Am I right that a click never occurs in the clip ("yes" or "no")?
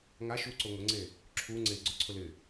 no